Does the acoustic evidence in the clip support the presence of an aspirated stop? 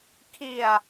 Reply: yes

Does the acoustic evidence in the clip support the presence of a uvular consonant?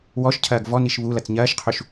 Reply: yes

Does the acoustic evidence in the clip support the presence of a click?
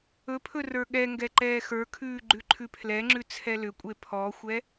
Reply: yes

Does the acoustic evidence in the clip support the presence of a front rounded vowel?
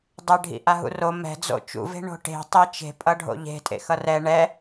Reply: no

